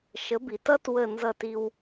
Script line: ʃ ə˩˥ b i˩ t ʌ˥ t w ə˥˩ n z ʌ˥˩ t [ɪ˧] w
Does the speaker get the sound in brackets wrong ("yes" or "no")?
yes